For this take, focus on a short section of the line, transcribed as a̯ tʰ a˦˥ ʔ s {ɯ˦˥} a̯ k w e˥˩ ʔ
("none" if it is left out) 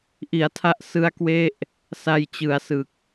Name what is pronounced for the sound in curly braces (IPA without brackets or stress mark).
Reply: ɯ˦˥